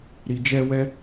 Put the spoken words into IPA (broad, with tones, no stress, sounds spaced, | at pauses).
ɾ i˨ d͡ʒ ɛ˧ w ɛ˦